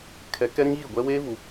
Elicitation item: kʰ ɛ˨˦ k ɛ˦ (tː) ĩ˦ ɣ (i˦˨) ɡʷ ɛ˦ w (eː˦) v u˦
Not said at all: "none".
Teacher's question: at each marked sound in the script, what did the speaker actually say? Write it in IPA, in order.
ɾ, i˦˨, eː˦

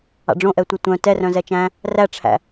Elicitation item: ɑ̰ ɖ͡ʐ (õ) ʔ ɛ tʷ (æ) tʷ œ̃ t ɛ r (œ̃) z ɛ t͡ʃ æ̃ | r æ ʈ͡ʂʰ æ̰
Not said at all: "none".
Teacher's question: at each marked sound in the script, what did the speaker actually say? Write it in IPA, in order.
õ, œ, œ̃

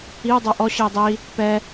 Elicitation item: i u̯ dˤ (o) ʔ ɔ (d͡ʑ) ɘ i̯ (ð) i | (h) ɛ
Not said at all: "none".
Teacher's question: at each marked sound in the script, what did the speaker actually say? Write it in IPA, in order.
o, ɕ, dˤ, p

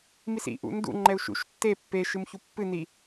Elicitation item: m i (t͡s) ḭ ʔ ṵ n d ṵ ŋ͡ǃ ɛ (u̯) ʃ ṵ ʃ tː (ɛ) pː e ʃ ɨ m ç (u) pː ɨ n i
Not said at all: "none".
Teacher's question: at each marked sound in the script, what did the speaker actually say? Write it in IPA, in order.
s, u̯, e, u

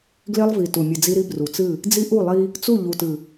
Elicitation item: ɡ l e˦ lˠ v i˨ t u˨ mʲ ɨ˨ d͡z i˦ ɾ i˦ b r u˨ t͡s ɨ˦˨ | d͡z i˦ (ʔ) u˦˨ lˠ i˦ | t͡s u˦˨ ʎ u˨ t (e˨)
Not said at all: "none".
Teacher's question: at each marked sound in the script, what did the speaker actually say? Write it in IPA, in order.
ʔ, ɨ˨

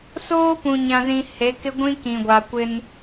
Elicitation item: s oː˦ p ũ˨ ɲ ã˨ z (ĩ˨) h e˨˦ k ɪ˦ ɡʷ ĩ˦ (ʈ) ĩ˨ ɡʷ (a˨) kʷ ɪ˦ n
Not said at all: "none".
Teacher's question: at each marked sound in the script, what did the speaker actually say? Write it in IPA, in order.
ĩ˨, k, a˨

